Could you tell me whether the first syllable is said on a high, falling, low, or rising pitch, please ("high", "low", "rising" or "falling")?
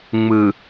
low